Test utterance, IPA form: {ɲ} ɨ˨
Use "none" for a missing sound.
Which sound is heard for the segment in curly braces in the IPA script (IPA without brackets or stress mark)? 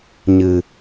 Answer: ɲ